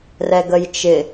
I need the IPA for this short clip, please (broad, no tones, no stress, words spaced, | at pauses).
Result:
rɛɡəjt͡ʃɪ